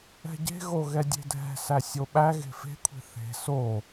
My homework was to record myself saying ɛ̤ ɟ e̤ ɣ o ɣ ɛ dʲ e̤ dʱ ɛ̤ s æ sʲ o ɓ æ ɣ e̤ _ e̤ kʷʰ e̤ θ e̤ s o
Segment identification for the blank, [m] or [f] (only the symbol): f